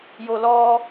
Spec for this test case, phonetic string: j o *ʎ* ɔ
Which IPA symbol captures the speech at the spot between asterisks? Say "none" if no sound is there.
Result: l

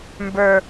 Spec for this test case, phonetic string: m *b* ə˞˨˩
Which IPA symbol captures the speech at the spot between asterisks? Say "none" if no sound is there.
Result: b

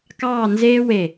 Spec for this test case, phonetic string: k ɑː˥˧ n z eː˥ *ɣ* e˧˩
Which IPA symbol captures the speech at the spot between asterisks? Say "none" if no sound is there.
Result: w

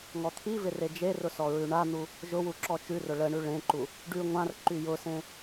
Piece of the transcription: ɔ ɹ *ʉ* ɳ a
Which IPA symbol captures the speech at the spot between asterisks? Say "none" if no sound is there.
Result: ʉ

